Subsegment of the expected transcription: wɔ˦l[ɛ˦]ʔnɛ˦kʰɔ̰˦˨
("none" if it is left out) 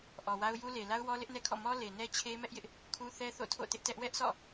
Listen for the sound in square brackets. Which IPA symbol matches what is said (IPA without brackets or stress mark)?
ɪ˦